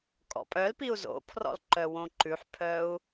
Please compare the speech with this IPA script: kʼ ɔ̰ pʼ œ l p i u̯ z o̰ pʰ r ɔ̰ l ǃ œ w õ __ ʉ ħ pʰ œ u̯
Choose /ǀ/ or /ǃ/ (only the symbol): ǃ